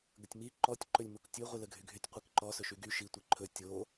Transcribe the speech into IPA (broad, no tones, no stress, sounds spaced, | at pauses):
ɡ ə tʲ m i ǃ ɔ tʲ ǃ ɵ lʲ m o k tʲ ɵ ʁʷ i l ə ɡʱ y ɡʱ y tʲ qʷ i k ǃ ɔ s ɵ ʃ y ɡ y ʃ i tʷ i ǃʰ ɵ tʲ o